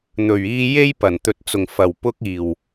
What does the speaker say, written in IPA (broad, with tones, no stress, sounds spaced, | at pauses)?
n̪ ɵ˨˩ ɥ iː˧ j e˥ j p ɐ˨˩ n t̪ ɵ˨ t̚ t͡s ʊ˨˩ ŋ f ɐ˨˩ w p ʊ˧ k̚ iː˨˩ w